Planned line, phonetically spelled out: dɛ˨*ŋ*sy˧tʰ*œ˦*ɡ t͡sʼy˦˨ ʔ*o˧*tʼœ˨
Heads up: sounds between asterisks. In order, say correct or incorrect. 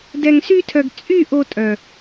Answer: correct, incorrect: œ˨, correct

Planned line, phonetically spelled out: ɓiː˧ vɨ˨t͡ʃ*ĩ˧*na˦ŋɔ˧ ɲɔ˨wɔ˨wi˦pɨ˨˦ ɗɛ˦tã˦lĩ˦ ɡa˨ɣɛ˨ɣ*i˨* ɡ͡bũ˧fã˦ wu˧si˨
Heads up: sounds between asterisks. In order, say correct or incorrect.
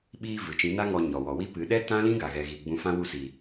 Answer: incorrect: ĩ˨˦, correct

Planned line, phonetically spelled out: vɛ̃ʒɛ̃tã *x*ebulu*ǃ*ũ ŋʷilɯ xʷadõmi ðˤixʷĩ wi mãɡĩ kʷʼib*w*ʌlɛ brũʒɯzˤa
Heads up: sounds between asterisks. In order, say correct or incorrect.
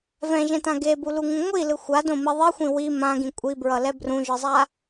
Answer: incorrect: ɡ, incorrect: ŋ, incorrect: ɹ

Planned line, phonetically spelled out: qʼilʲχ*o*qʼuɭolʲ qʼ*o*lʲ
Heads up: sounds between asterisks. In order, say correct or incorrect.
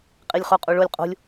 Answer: correct, incorrect: o̤

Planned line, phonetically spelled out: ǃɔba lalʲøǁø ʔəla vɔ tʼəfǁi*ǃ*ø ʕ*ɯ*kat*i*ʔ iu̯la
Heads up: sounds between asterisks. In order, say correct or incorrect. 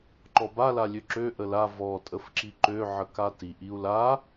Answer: correct, incorrect: ə, correct

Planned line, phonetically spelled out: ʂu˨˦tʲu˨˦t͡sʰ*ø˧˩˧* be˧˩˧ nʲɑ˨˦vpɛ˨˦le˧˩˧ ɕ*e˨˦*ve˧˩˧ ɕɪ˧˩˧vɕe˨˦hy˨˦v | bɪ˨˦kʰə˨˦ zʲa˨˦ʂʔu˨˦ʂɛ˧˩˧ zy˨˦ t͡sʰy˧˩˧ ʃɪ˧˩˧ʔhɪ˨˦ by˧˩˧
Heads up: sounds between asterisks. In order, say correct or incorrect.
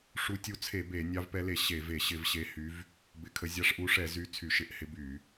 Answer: incorrect: e˧˩˧, incorrect: e˧˩˧

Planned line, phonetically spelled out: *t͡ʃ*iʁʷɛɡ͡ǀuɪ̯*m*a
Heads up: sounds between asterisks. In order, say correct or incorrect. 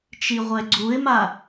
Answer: correct, correct

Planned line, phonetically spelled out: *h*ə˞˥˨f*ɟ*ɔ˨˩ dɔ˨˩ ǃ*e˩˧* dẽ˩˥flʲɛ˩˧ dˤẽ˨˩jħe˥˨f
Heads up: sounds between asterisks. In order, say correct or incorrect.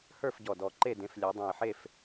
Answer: correct, correct, incorrect: e˥˨

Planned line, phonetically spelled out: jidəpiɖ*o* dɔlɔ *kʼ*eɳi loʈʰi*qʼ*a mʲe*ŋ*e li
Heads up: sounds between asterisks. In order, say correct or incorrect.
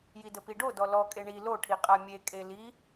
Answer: correct, correct, correct, incorrect: kʼ

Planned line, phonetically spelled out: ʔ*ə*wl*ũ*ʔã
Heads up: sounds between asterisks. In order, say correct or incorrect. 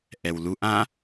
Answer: incorrect: ɛ, incorrect: u

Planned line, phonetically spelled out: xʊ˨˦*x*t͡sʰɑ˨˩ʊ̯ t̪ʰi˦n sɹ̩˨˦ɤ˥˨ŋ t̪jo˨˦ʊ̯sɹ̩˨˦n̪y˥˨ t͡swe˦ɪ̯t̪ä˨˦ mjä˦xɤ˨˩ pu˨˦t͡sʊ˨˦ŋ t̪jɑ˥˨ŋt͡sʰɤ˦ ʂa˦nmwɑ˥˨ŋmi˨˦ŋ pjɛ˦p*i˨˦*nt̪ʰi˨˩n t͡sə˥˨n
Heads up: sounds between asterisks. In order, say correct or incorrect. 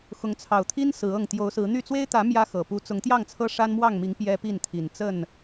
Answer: incorrect: ŋ, incorrect: i˥˨

